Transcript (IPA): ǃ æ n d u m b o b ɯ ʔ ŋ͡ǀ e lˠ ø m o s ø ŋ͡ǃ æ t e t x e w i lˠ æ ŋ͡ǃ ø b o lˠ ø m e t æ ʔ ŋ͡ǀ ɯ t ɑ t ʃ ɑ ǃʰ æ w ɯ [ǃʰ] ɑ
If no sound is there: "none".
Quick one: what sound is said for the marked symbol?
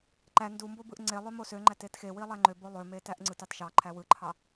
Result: ǃʰ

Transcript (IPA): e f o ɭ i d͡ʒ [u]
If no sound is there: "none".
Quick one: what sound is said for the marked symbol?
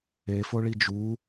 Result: u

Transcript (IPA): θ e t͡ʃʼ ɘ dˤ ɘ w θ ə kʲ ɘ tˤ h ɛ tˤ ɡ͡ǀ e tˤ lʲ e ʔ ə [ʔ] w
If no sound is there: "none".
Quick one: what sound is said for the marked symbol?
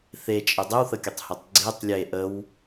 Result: none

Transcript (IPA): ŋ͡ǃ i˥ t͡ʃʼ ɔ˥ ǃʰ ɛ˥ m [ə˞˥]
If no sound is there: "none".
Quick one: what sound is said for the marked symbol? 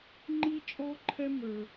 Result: ə˞˥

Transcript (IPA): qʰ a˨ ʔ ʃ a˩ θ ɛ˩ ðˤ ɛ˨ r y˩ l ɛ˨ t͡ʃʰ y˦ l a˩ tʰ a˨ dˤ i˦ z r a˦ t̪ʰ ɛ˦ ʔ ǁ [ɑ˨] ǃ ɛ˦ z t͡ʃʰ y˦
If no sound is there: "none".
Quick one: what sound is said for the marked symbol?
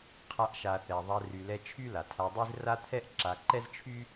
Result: a˨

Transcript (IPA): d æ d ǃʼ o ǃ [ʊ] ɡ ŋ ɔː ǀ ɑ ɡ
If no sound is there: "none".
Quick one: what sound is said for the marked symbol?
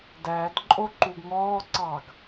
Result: u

